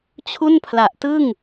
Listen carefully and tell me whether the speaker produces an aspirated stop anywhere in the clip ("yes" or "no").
yes